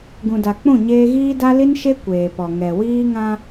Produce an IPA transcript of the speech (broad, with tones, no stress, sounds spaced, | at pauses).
ɡ ũ˨ d a˨ k͡p ũ˦˨ ɲ eː˦ ɣ iː˦ d a˦ l i˦ n ʃ e˦ kʷ eː˨ p ɔ˨ ŋ ɛ˨ w iː˦ ŋ ã˦